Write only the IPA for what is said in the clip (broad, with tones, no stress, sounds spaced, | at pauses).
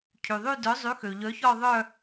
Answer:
cʰ y˩ ðˤ y˥˧ d œ˨˥ zˤ y˨˥ x ø˩ ʎ œ˨˥ ç ɔ˥˧ ðˤ œ˥˧